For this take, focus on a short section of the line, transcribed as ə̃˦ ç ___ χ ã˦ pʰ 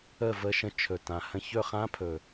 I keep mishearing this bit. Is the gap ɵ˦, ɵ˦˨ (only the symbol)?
ɵ˦˨